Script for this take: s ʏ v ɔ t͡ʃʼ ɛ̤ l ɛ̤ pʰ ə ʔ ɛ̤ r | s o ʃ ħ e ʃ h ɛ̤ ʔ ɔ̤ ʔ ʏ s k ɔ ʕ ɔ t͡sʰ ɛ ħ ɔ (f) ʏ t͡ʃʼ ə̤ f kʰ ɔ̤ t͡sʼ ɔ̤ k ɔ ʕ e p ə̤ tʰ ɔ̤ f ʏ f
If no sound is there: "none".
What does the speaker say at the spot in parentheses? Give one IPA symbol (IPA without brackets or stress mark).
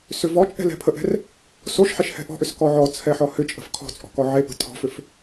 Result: h